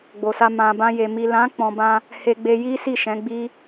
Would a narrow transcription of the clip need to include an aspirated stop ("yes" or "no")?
no